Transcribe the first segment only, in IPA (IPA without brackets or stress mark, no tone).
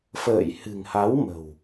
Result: f